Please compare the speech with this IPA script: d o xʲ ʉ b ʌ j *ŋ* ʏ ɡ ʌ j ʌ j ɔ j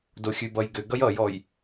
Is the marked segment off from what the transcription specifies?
yes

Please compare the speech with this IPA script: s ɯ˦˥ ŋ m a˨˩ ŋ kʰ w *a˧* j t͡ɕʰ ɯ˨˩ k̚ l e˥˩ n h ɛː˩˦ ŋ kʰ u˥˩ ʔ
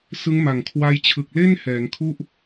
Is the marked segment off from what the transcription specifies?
no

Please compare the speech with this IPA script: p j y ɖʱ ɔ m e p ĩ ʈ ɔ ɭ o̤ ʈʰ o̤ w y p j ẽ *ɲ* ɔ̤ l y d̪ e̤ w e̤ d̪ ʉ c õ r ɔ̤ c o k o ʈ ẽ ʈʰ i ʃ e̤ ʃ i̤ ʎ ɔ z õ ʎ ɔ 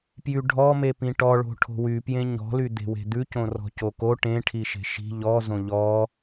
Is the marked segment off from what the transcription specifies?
no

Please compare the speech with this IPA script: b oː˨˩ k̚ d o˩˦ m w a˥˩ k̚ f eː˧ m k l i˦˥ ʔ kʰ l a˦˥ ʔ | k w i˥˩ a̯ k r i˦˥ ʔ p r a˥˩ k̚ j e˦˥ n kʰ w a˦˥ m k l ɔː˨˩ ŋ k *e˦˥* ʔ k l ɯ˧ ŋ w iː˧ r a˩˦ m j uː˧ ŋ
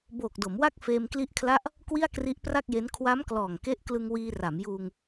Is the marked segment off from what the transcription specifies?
no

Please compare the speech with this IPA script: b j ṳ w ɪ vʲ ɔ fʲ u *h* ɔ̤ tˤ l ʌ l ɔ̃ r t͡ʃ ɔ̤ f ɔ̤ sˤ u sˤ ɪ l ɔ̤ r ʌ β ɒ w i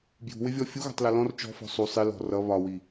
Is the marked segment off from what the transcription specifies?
yes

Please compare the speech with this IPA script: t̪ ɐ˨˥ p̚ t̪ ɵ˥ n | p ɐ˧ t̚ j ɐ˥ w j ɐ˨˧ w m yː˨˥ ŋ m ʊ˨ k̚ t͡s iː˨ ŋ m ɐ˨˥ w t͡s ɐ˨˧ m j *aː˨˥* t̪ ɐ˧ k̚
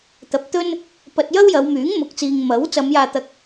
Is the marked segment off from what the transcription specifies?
yes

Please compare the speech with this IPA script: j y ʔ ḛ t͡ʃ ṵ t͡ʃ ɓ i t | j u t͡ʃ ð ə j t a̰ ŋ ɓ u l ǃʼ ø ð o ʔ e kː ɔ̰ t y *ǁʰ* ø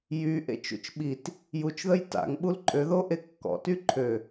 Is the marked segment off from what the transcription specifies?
yes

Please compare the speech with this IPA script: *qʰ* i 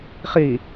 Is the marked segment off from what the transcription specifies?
yes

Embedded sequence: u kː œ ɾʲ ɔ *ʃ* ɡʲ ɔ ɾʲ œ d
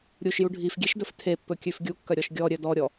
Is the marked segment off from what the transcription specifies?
no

